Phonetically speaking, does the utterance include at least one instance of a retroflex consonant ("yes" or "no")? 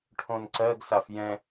yes